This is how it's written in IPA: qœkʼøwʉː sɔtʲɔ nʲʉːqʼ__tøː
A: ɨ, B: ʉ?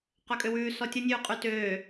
B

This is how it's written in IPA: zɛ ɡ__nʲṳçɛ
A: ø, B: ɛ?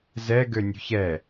A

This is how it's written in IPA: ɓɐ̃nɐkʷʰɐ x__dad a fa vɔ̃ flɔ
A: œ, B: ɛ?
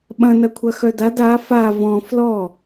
A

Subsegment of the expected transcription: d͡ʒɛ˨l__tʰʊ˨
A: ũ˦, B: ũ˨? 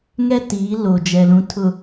B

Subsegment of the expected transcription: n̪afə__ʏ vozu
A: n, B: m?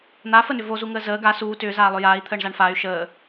A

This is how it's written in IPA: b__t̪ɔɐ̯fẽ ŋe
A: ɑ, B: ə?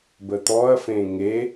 B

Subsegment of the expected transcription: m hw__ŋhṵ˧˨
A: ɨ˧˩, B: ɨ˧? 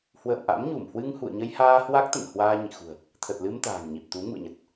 B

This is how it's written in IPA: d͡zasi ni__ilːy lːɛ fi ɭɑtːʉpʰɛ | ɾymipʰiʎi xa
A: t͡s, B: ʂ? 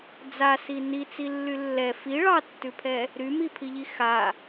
A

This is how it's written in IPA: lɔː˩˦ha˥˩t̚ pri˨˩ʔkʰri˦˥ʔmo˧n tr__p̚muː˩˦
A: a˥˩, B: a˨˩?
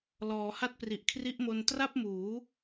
A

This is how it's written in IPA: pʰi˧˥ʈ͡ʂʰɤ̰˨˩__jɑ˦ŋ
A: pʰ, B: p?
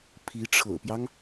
B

